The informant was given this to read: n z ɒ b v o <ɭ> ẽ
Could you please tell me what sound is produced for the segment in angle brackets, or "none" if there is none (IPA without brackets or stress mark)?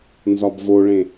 ɭ